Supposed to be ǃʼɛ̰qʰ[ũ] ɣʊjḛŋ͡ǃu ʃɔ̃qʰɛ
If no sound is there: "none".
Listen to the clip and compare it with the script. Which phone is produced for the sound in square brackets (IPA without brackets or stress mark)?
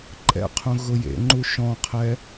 ũ